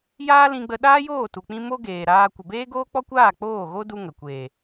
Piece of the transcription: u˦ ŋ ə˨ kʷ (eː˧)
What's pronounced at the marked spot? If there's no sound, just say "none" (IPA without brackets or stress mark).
eː˨